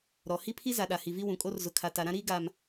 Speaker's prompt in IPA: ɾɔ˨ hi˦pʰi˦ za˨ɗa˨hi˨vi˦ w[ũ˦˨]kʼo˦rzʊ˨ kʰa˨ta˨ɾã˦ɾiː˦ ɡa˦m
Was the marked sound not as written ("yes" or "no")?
yes